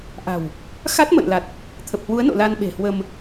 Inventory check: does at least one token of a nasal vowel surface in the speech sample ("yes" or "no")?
no